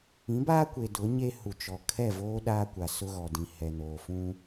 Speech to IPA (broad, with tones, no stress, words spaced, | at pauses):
ĩ˨˦baː˦kʷe˨ dʊ˨˦ɲe˦hu˨t͡ʃɔ˨ kʰɛ˦˨voː˦ ɗaː˦kʷa˨ sʊ˦ɣɔ˨dĩ˨ hɛ˨noː˨fũ˦